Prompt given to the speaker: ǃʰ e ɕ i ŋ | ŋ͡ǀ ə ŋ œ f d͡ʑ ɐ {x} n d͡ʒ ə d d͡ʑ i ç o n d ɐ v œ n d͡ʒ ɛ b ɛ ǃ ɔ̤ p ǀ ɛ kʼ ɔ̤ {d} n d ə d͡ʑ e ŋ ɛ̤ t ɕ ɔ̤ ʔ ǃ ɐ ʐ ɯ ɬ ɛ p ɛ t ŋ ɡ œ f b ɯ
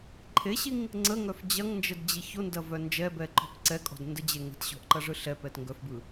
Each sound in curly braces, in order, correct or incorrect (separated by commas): incorrect, correct